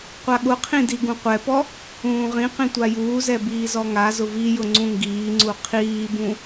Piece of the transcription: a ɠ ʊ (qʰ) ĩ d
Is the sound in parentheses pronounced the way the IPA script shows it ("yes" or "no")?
yes